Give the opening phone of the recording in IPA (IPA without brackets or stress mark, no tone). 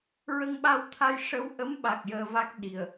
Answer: ɹ